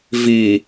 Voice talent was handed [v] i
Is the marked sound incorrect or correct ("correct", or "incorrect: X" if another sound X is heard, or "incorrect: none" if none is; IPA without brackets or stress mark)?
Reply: correct